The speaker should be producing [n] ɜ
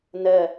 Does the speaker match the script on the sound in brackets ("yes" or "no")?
yes